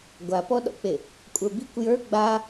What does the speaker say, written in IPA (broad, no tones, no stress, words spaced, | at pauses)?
ɡʷapɔɗɔ̰k͡pe | kʷʼə˞bikʷ jə˞ ɡ͡ba